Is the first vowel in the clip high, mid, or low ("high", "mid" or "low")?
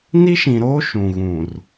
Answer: high